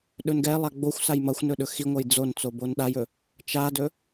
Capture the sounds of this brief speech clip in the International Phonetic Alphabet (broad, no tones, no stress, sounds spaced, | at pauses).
ɗ ɵ n ɡ ɛ lˠ a ɡ͡b o xʷ s a j m ʌ xʷ n ɵ ɗ ɵ x i ŋʷ ʌ j d͡z o n t͡s o b o n ɗ a j ɵ | t͡ʃ a d ɵ